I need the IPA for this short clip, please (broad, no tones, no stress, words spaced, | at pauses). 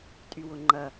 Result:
tʼywʊŋ͡ǃɐ